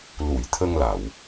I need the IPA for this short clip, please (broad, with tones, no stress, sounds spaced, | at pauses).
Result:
l u˨˩˨ j t̪ʰ ə˧ ŋ l a˨˩˨ w